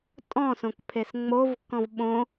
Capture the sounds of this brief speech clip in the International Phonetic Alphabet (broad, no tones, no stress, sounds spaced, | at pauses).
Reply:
tʼ ɔ̃ s õ k pʰ e s ŋ͡m o v kː ɔ̃ v ɓ õ